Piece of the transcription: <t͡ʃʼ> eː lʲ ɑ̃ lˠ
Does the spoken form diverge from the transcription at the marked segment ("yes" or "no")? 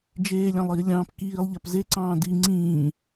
yes